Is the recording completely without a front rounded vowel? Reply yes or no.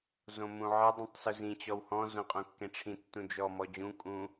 yes